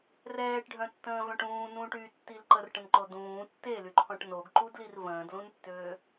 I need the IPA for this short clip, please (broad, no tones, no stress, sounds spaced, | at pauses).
r ɛː ʈ ɖʱ œ̃ tː ə̃ː v œ̃ ʈ ũː n ũː ʈ y tː i l ǃ ə r ʈ ə̃ n ǃ o d ũː tː e l y ǃʰ ɔ̃ ʈ n o ɡ ǃ u d l i r v ə̃ː d l ũ n tː øː